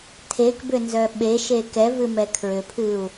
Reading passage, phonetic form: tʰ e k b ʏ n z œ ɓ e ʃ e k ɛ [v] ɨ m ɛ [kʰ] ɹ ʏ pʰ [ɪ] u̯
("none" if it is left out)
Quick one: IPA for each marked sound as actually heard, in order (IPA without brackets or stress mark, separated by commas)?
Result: v, kʰ, ɨ